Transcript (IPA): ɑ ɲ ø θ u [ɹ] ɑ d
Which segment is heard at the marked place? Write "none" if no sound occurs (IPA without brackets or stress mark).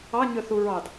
ɹ